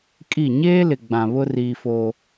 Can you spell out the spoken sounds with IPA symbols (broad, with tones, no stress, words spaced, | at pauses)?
kʼi˦˨ ɲeː˦lɪ˨ ɡ͡bã˨βʊ˦ riː˦foː˦